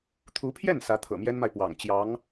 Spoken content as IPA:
t̪ʰ u˧˥ pʰ j ɛ˥˩ n s ä˧˥ t̪ʰ ɤ̰˨˩ m j ɛ˥ n m a˨ ɪ̯ p w ɑ̰˨˩ ŋ t͡ɕ j ɑ˧˥ ŋ

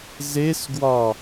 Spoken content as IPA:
z e s ɡ w ɒ

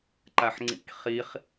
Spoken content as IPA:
ǃ a ħ ŋ͡ǀ ḭ k χ i χ

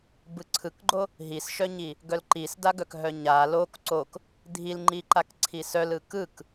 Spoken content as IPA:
b ɯ ǀʰ ɯ k ɡ͡ǃ o | ɦ i s ʃ œ ɲ i | ɡ œ l ǃ i s d a ɡ œ k ɦ œ ɲ a l o k ǀ o k | dʱ i l ŋ͡ǃ i ǃ a k ǀʰ i s œ l ɯ k ɯ k

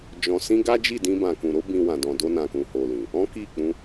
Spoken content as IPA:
d͡ʒ ɔ̃˨ s ĩ˧ ɡ a˦ d͡ʒ i˦˨ d ĩ˧ b ã˨ k ũ˨ ɾ o˨˦ b ĩ˧ w ã˨ d ɔ̃˨ d o˧ n ã˨ k ũ˨ h o˨ l ĩ˨ | ɔ̃˦ k i˦˨ k͡p ũ˧

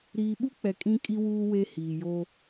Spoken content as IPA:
ɾ iː˨ ɓ u˦ k͡p ɛ˨ kʼ ĩ˦ kʼ i˦ w uː˦ w e˦ h iː˨ j o˦

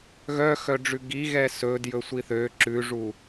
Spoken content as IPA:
ɣ œ x œ ɖ͡ʐ ʉ ɡ i ɣ ɛ s ɵ d j ɵ sʷ i θ ø ǁ ʉ ʐ u

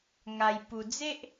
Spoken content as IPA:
ŋ a˧ j p u˧ d͡z e˦ ʔ

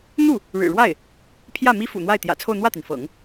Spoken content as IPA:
n̪ u˥˩ | ɻ ɻ̩˨˩ ɻ w a˥˩ ɪ̯ | pʰ j ä˥˩ m i˥ f ṵ˨˩ n̪ w a˥˩ ɪ̯ t̪ j ä̰˨˩ t͡sʰ o˥˧ ʊ̯ n̪ w ä˥˩ t̪ i˩ n f ɤ̰˨˩˦ ŋ

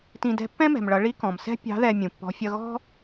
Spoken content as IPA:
t ĩ˧ d ɛ̤˧˥ pː ɛ̃˥ m ɛ̤˩ m ɭ ʌ˩˧ ɭ i˧˥ k ɔ̃˩ m s ɛ̤˥ pʲ ɑ̤˧˥ ð ɛ˧ mʲ ũ˩ pː ɔ̤˧˥ fʲ ʌ˥ ɣ ɔ̤˥

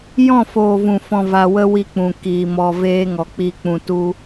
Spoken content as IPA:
j ɔ̃˦˨ f oː˨ v ũ˨ f ɔ̃˧ v a˧ w ə˦ w i˧ k͡p ũ˨ k iː˨ m ɔ˧ v eː˦ ŋ ɔ˨ k͡p i˧ k͡p ũ˧ t u˦

